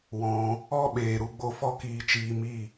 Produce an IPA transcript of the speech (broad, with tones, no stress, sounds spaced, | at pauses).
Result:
w ɔ̃˧ | ɔ˦ ɓ eː˨ ɾ u˧ ɡ͡b o˧ f ɔ˦ k iː˧ t͡ʃ iː˧ m i˦˨